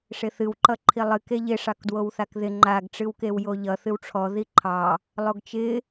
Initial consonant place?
retroflex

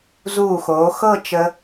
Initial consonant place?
alveolar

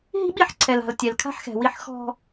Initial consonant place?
glottal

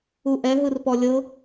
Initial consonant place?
glottal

